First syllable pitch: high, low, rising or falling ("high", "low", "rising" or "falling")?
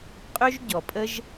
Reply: high